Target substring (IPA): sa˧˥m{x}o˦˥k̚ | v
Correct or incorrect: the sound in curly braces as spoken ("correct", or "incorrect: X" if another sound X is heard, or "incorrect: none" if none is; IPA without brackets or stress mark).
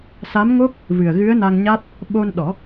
incorrect: ŋ